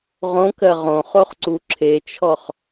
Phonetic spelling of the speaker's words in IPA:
ʁ õ k ɜ ʁ õ χ o χ ǀ u ǁʰ e t͡ʃʰ ɔ χ

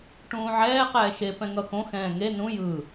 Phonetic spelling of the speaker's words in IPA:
ʈ ũː ʕ ɛː q ɛː ʃ e p ɛ̃ ŋ ʌ x õ x ɛ̃ː ŋ e n ũ j ɯ

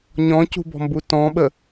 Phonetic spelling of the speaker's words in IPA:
ɲ ɔ̃ c ṳ b ɔ̤ m b u t ɔ̃ ɓ ə

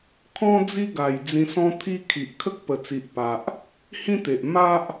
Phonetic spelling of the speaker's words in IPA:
kʰ ɔ̃˦ d͡z i˦ ɡ a˨˩ j d͡z ĩ˧ s ɔ̃˦ t̪ʰ i˦ kʰ i˨ ʔ kʰ ə˦ k̚ p ə˨˩ t͡s i˨ ʔ p a˨ ʔ | h ĩ˦ t̪ e˨ ʔ m a˦ ʔ

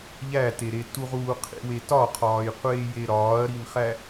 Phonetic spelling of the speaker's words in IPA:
ʎ æ t e ɾ e t u ʁ uː qʰ ḭ w e t ɒ qʰ ɒː j qʷ eː j e ɾ ɒː ɐ̯ ɾ i n χ æ

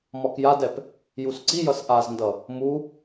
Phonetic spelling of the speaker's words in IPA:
m ɒ k j a d ɛ p | j u s ǀ i j ʌ s ʔ a z n d ʌ | m u

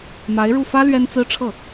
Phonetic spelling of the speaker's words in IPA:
m a˧˥ ɪ̯ ɻ u˥˩ f ä˥ l ɥ ɛ˥ n t͡s ɹ̩˥ ʈ͡ʂʰ ɤ˥˩

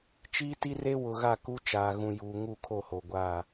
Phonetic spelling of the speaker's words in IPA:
t͡ʃ iː˦ t i˦ r e˦ w ʊ˨ ɣ a˦˨ k u˦ t͡ʃ aː˨ ɣ ũ˨ j uː˨ ŋ u˦˨ kʰ o˦˨ h o˨ ɡʷ aː˦˨

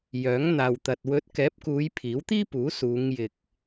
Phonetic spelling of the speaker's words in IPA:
j œː˨˥ ŋ n̪ aː˨ w t̪ ɐ˨ t̚ w ɵ˨˥ t̚ k ɛː˨˥ p̚ k uː˨˧ j pʰ iː˨˥ w t̪ iː˥ p uː˨˥ s uː˨˧ ŋ j ɪ˨ k̚

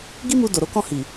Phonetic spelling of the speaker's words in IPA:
ɡ i˦ m u˧ d o˨ ɾ o˨˦ k ɔ̃˦˨ h i˨

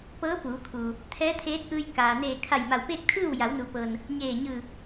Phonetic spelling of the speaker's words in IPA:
p ɤː˧˥ p uː˩˧ kʰ uː˩ | t̪ʰ ɛː˧˥ t̪ʰ eː˧˥ t̚ ʔ ɯː˧ j k aː˩ n eː˧˩ kʰ a˧˩ j m a˧˩ w p eː˥˨ k̚ t̪ʰ ɯː˥˨ w j a˩˧ w n u˩ p ɤː˩ n | ɲ eː˧˩ ɲ ɯː˧˩

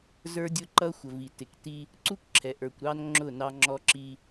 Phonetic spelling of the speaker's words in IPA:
z ə˞˦ dʲ ʊ˦ ǃ ʌ˦ xʷ ə˨ v i˨ t ɪ˨ k t i˦ | ǀ u˦ kʷ ǁʰ ɛ˨ ʔ ə˞˨ kʷ ɾ ɑ˦ n ŋ͡ǁ ʊ˦˨ n ɑ˦ ŋ͡ǁ ɔ˦ ǁ i˦

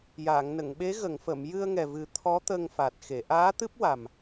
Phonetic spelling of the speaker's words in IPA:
j aː˨˩˨ ŋ n ə˨˩˨ ŋ ɓ e˧˥ ɣ ə˨˩˨ ŋ f ə˨˩˨ m j ɨ˧ ə̯ ŋ ɛ˨˩ v ɨ˨˩˦ t̪ʰ ɔ˧˥ t̪ ə˧ ŋ f a˨˩ t̚ x e˨˩˨ ʔ aː˧˥ t̪ ɨ˦˥ p̚ w a˨˩ m

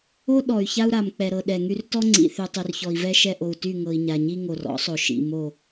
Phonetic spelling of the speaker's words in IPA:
o˦ ɗ ɔ˨ y̯ ç a˦ u̯ ɾ a˨ m k͡p ɛ˨ ɾ ɤ˨ ɗ ɛ˨ ŋ y˦ r t ɔ˦ ŋ͡ǀ ḭ˨ θ y˨ tˤ y˨ r ç ɔ˨ i̯ v ɛ˦ ʃ ɛ˦ ʔ o˨ u̯ t y˦˨ ŋ ɤ˨ i̯ ɲ a˨ ɲ i˦ ŋ o˨ r ɔ̰˨˦ sˤ o˨ ʃ ḭ˨ m o˦˨

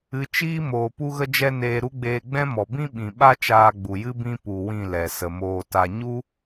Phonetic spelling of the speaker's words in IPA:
ɨ˧ t͡ʃ iː˦ m oː˨ p u˧ ɣ ə˧ d͡ʒ ɛ˦ n eː˧ ɾ u˦ ɡ͡b eː˧ ɡ͡b ɛ̃˦ m ɔ˨ b ĩ˦ ɓ ĩ˨ ɓ a˦ t͡ʃ aː˧ ɡ͡b u˨ j ɨ˦ b ĩ˦ p u˧ w ĩ˦˨ l ɛ˨ s ə˨ m oː˧ t a˧ ɲ u˦

